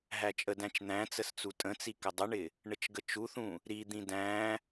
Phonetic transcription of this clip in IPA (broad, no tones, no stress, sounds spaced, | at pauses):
ɦ æ t͡ʃʼ ə d æ̃ t͡ʃ n̪ æ̃ t͡s ə s t͡s u tʼ ə̃ t͡s i k ɪ dˤ ʊ ɳ ɪ | ɳ ə t͡ʃ ɡ ə t͡ʃ u θ ũ | ɾ i d̪ ĩ d æ̃